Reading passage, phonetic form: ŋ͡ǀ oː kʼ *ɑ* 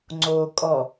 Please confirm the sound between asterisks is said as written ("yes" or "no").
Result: no